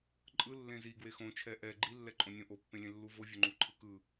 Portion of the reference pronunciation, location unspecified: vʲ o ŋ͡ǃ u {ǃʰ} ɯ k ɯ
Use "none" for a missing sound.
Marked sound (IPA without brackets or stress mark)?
ǃʰ